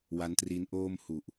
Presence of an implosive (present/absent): absent